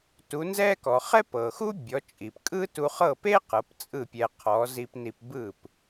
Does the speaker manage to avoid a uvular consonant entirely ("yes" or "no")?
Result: no